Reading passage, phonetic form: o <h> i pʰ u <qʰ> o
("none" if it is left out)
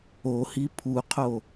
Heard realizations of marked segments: h, qʰ

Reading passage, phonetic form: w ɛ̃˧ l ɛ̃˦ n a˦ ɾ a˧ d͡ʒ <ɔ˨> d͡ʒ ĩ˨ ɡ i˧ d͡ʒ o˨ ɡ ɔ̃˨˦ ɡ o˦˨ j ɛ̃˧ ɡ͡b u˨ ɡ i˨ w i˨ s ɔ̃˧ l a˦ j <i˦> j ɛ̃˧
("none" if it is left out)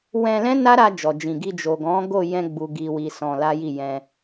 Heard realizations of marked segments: ɔ˨, i˦˨

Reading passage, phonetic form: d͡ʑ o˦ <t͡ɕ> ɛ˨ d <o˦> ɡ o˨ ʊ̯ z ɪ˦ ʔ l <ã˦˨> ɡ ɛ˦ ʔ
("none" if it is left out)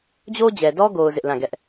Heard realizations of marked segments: d͡ʑ, ɔ˦, ã˦˨

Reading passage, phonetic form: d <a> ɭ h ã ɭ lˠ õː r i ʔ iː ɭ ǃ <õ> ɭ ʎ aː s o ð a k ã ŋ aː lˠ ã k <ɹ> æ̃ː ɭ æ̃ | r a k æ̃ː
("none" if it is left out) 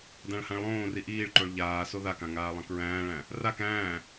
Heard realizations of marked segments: ã, o, ɹ

